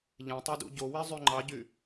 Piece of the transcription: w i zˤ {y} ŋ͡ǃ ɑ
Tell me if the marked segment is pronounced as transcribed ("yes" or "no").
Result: yes